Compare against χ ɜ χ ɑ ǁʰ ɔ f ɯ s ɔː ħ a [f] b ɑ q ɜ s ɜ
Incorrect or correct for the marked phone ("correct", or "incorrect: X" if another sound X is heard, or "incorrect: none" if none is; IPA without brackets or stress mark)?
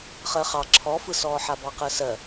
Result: incorrect: none